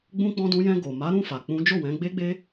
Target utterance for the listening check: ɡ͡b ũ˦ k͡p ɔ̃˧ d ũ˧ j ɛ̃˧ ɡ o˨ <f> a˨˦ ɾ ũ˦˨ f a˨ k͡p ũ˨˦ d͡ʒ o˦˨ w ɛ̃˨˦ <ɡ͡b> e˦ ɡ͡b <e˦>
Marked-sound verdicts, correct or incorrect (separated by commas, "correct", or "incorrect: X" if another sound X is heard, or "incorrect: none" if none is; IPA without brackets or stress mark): incorrect: m, correct, correct